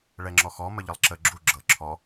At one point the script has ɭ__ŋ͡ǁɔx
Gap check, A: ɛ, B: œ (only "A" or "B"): A